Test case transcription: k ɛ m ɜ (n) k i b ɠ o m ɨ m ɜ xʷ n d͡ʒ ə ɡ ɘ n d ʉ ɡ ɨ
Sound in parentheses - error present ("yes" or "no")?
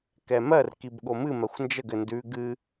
yes